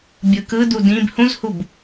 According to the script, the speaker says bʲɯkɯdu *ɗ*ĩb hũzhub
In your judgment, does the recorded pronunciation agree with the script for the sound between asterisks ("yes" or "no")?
no